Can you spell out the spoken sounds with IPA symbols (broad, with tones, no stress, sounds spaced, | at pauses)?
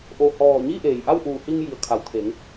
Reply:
ʔ o˧˩ h ɔː˧˩ ɲ iː˥˨ ʔ eː˩ j ʔ a˥˨ w ʔ uː˧˩ h i˧ ŋ j i˩˧ ə̯ kʰ a˩˧ w t̪ʰ e˩˧ ŋ